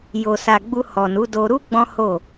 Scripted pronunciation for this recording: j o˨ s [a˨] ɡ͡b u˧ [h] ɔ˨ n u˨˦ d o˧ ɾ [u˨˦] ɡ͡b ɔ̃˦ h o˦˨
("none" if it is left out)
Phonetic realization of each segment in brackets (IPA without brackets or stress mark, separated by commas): a˨, h, u˦